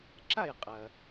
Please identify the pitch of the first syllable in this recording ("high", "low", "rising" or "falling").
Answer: falling